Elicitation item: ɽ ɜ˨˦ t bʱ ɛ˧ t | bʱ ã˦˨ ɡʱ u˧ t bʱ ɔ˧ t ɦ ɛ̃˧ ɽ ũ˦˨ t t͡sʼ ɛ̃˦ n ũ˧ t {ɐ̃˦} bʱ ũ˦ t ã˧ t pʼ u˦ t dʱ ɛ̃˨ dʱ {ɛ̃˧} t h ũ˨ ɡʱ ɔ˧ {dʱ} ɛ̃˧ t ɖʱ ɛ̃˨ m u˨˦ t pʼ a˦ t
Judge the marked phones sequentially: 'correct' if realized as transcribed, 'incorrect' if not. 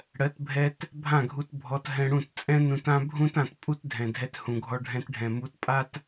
incorrect: ã˦, incorrect: ɛ˧, incorrect: ɖʱ

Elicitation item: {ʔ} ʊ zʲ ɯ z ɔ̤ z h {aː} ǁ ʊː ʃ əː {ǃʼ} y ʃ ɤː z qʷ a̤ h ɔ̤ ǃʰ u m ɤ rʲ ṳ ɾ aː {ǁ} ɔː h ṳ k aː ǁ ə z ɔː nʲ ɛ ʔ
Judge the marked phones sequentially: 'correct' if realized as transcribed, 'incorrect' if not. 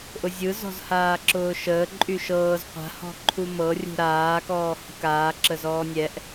correct, correct, correct, incorrect: k

